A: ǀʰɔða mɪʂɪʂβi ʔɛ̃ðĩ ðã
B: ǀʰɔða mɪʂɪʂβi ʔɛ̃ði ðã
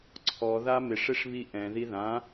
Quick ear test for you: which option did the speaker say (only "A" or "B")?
B